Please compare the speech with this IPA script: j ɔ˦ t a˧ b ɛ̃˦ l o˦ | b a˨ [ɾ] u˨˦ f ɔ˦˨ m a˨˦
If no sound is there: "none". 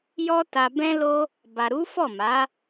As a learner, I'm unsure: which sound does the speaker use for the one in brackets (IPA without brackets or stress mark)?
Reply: ɾ